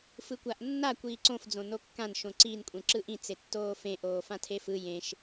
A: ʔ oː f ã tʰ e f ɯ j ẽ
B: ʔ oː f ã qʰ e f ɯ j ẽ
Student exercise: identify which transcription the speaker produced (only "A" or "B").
A